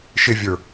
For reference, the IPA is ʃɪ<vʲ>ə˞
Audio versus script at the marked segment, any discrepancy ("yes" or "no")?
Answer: no